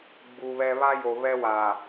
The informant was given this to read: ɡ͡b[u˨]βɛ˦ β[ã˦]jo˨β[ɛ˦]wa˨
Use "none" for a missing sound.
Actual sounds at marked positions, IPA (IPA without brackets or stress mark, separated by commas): u˨, a˦, ɛ˦